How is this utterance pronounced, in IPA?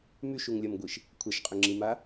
m y ʃ u ŋ lʲ ɐ m ɡʷ i ʃ | kʷʰ ɛ ʃ qʼ ʏ ŋ͡ǁ i m a

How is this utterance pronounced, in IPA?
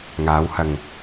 ŋ aː˨˧ w h ɐ˨ ŋ

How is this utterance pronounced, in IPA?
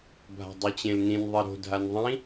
bʱ a̤ dˤ u t͡ɕ ẽ l n ĩ n ðˤ i ɾ o̤ dʱ a n ðˤ ĩ

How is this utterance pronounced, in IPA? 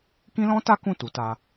k ĩ˦ l ɔ̃˦ t a˦ k ũ˦˨ t u˨˦ t a˧

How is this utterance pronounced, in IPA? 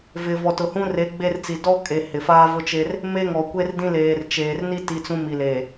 v ɪ˨ v ɔ˨ t ʊ˨ h ũ˦ r e˨˦ ɡ͡b e˦˨ r t͡s i˨ d ɔ˦ kʼ e˨ h ɪ˨ f aː˦ v ʊ˦ t͡ʃ e˦ r | m e˦ ŋ ɔ˨ kʷ e˦ r d ĩ˦ l eː˨ r t͡ʃ eː˨ r n i˦ t i˦ t͡s ũ˦ m i˨ l eː˨

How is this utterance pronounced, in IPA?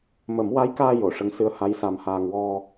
m ə˨˩˦ m w a˧˥ j k aː˧ j o˨˩˨ ʂ ə˧˥ ŋ s ɨ˧˥ ə̯ h a˧˥ j s a˧ m h aː˧ ŋ w ɔ˧

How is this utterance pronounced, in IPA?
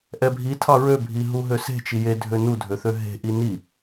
ʔ ɛ bʱ i tʰ ɑ ɹ ø bʱ i ɦ u ɦ ø s e̤ t͡ʃ i j e dʱ ø n u dʱ ø θ ø ɦ e̤ ʔ i n i

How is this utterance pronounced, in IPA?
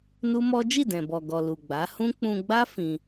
n u˦ m ɔ˦ d͡ʒ i˦˨ d ɛ̃˨ b ɔ˨ ɡ ɔ˨ l u˨ ɡ͡b a˨˦ h ũ˦ k͡p ũ˧ ɡ͡b a˦ f ĩ˧

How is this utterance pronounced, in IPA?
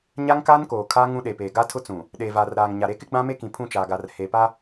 ɲ a˦ ŋ k aː˦ n k oː˨ kʰ aː˦ ŋ ũ˦ ɗ e˨ p eː˨ ɡ a˦ tʰ ʊ˦ t͡s ũ˨ | ɗ eː˨ v aː˨ r ɾ aː˨ ŋ ɲ a˨ ɾ e˦ k ɪ˦ ɡ͡b ã˦ m e˦ k ĩ˨ pʰ ũ˦˨ t͡ʃ aː˨ ɡ a˨ r h eː˨ p a˦

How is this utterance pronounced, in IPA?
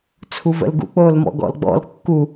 t͡sʰ u v ə̰ l ɡ ṵ k͡p oː l m ɔ̰ ɡ ɔ̰ l ɡ͡b ɔ̰ l kː u

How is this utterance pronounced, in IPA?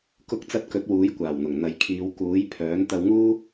k ʊ˧ k̚ t͡s ɐ˧ t̚ k ɵ˨˥ t̚ w uː˨˥ j kʷ aː˨˩ w n̪ ʊ˨˩ ŋ n̪ ɐ˨ j kʰ iː˨˧ w k uː˨˥ j pʰ œː˨˥ n t̪ ɐ˧ w ŋ uː˥

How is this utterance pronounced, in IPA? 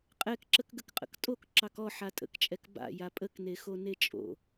qʼ ɛ k ǁ ə k ɡ ə k qʼ ə̰ k tʼ o k ǁ ɑ k ɔ ħ a tʼ ə̰ k t͡ʃʼ ɛ k b a̰ j a pʼ ə k n e x o n e t͡ʃʼ o̰

